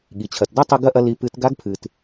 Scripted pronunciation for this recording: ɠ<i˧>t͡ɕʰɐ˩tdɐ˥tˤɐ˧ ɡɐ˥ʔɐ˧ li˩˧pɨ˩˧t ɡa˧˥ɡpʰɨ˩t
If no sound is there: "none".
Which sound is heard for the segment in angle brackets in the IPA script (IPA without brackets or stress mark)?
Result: i˩